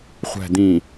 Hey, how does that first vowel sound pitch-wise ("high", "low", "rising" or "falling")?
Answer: low